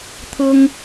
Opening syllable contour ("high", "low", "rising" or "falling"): high